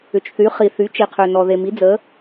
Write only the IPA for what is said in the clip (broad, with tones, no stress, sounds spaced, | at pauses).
ʏ˩ t͡ʃ θ y˩˧ χ i˩ θ y˩˧ t͡ʃ i˩ qʰ ø˩ n ɔ˩ ð e˩ m i˩˧ d͡z ə˩˧